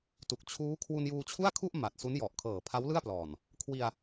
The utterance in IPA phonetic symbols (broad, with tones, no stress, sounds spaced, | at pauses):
t u˨˩ k̚ t͡ɕʰ uː˦˥ kʰ w u˧ n j uː˧ t͡ɕʰ u˥˩ a̯ kʰ u˥˩ ʔ m a˨˩ t̚ s u˦˥ n j ɔ˨˩ ʔ kʰ ɤː˨˩ pʰ a˦˥ w l ɯ˥˩ a̯ p l ɔː˨˩ n | kʰ w i˧ a̯